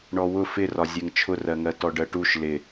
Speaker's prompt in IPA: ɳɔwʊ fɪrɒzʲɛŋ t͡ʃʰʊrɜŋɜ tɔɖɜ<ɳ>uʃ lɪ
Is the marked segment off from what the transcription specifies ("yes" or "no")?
yes